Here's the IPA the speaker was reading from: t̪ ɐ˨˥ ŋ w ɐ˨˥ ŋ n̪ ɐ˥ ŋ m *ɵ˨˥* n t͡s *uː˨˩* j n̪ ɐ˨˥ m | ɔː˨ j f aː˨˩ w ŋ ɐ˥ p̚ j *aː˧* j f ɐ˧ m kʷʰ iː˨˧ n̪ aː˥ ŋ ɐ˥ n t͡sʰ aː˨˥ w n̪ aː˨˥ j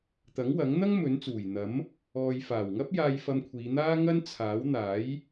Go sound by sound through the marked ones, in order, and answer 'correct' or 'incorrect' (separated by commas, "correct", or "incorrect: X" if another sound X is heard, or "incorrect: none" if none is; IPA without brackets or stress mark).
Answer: correct, correct, correct